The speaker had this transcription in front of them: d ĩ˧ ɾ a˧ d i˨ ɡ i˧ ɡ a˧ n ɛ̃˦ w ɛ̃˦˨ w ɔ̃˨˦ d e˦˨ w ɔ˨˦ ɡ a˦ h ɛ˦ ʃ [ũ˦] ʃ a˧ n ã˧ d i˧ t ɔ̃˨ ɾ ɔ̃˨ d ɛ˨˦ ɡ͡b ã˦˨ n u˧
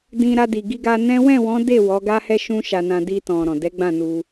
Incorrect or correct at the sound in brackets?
correct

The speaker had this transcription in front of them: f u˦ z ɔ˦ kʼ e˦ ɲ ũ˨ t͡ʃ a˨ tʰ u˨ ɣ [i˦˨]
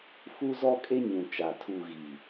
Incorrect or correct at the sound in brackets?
incorrect: i˨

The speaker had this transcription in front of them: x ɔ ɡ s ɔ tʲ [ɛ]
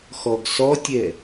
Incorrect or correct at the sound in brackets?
correct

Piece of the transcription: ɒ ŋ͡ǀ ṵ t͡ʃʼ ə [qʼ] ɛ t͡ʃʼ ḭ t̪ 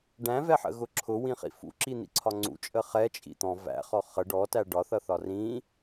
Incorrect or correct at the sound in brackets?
incorrect: χ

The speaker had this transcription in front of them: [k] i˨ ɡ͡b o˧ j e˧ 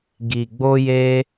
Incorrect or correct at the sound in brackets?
incorrect: ɡ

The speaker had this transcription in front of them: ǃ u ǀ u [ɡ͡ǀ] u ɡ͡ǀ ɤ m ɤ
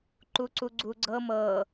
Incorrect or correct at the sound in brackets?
correct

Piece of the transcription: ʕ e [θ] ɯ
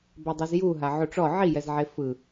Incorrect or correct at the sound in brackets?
incorrect: f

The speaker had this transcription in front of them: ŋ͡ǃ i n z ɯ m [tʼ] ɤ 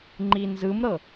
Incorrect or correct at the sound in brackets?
incorrect: ɾ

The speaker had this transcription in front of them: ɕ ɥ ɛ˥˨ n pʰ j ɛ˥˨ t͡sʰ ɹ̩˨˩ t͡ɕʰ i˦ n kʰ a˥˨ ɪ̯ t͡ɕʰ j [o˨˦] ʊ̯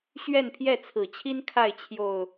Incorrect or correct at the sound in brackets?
incorrect: o˨˩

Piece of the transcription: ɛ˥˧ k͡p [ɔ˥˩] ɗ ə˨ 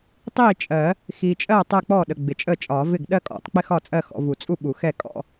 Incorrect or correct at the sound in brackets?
correct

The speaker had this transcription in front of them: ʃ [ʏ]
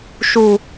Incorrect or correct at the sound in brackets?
incorrect: u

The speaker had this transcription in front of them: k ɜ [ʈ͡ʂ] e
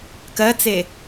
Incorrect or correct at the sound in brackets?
incorrect: t͡s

